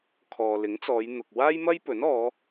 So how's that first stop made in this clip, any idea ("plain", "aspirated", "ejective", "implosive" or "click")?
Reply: aspirated